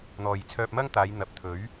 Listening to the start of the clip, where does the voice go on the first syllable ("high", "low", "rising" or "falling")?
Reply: low